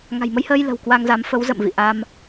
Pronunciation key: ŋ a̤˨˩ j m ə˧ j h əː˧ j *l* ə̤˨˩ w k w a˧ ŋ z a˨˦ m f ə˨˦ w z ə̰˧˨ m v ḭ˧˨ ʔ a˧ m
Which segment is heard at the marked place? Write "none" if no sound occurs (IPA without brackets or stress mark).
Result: l